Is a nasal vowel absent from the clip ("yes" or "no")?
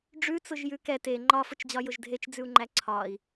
yes